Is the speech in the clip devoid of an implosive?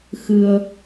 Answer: yes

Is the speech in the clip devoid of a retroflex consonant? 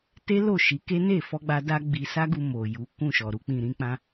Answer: yes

